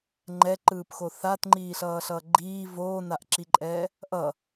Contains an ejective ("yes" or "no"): yes